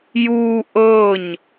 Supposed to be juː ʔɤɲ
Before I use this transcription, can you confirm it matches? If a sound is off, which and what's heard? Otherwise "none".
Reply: none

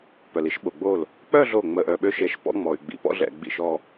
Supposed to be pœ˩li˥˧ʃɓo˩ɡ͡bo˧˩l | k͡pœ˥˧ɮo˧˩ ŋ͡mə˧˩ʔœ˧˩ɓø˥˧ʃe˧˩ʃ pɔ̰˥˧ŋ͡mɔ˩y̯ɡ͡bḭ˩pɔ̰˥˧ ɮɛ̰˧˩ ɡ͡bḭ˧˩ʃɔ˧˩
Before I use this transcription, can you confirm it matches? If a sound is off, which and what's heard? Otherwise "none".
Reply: none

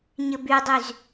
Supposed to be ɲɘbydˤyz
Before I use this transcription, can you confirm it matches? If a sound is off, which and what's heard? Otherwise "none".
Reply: none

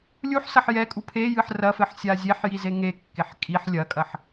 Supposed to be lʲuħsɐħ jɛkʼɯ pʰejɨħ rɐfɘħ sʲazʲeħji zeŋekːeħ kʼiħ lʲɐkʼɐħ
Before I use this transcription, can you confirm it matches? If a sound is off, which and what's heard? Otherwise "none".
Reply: ɯ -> u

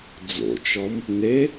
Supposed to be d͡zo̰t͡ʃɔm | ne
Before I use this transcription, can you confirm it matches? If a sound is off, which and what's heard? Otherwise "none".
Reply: none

